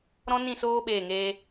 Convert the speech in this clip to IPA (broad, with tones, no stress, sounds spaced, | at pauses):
ɾ ɔ̃˦ n ĩ˦˨ s oː˦ ɓ eː˦˨ ŋ eː˦